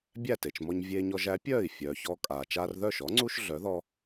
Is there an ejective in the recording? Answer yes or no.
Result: yes